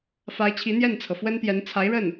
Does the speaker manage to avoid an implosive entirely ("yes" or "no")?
yes